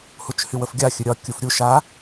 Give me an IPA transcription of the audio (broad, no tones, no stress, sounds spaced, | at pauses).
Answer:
h u t͡ʃ h y w ə f ɡʲ a xʲ ɵ ɾʲ ɒ kʲ u f ɾʲ u ʃ a